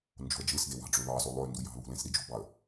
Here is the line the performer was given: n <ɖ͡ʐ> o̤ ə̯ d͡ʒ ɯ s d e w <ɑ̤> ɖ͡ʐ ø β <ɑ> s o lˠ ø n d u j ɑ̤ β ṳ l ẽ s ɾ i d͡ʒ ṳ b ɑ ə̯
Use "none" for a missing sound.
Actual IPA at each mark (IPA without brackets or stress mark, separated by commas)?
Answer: d͡ʒ, ɑ̤, ɑ